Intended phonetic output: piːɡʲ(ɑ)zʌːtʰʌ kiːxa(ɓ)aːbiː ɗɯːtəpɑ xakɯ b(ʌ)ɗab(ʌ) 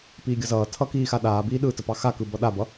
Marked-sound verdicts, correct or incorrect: incorrect: ʌ, incorrect: ɗ, correct, correct

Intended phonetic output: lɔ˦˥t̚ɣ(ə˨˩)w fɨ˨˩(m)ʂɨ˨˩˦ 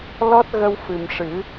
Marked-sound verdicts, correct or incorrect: incorrect: ə˧, correct

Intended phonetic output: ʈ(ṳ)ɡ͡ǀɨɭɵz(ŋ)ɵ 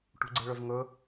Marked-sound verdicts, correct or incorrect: correct, correct

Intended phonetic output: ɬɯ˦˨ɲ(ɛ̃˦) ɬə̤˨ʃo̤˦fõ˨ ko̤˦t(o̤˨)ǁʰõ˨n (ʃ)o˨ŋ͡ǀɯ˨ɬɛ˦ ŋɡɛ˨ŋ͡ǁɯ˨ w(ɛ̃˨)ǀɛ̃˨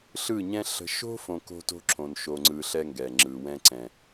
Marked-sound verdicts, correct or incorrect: correct, incorrect: o̤˦, correct, incorrect: ɛ̃˦

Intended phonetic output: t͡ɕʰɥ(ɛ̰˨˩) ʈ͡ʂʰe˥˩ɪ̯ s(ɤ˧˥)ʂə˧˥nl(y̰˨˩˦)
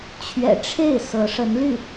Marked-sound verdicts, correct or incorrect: correct, correct, incorrect: y˥˩

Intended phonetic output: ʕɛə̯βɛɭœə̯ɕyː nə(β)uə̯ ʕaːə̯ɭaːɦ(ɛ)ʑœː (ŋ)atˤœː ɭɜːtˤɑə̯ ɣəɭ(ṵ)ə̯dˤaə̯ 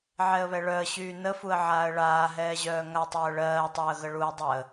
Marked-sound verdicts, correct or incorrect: incorrect: f, incorrect: ɛː, correct, incorrect: u

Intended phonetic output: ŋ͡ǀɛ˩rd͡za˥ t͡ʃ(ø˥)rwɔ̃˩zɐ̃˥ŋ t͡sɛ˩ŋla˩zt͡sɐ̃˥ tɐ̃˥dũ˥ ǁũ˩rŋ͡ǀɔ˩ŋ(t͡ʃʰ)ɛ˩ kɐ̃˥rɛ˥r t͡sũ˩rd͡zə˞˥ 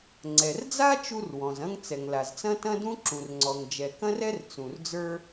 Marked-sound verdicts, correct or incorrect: incorrect: u˥, incorrect: d͡ʒ

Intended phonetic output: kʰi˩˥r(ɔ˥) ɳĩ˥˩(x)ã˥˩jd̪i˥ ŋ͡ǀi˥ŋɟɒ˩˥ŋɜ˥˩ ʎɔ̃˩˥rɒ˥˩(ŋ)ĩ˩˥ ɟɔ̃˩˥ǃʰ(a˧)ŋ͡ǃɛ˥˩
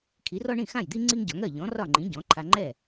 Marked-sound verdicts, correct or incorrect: correct, correct, incorrect: ŋ͡ǃ, correct

